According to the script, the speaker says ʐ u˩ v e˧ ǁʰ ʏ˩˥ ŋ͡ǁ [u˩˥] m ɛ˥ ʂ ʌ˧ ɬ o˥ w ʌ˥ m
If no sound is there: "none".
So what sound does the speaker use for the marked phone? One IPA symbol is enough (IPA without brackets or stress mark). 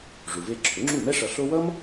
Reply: u˥˩